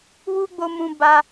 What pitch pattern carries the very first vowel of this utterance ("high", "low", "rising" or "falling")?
high